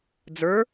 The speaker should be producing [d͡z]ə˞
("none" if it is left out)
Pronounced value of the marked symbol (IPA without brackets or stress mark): d͡z